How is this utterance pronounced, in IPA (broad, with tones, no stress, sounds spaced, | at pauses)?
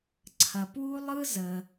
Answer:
ǀʰ ɐ˩ p w u˥ lˠ ɯ˥ z ə˩